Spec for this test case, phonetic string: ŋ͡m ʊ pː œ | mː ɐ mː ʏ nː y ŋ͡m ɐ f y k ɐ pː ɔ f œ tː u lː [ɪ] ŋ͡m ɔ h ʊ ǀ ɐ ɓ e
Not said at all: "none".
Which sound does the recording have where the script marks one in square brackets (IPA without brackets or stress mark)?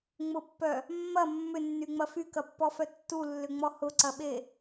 ʏ